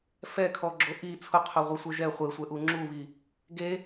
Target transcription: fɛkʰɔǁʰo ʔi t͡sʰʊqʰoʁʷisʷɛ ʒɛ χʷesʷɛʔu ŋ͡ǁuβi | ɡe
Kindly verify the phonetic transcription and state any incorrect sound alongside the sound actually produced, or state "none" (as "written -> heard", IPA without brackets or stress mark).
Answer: ǁʰ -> ɡ͡ǁ